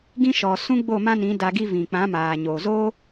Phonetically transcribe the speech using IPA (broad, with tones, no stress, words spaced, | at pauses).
ɡĩ˧ ʃɔ˨ sũ˦ɡ͡bo˦˨mã˦nĩ˨˦ da˧ɡi˦ vĩ˨k͡pã˨˦maː˨ɲoː˨ zoː˦